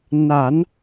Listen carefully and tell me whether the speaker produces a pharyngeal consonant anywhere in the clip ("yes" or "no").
no